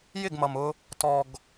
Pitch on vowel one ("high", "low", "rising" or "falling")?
falling